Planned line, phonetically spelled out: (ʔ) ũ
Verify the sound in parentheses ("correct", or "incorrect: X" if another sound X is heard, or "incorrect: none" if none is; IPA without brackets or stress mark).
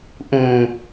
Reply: correct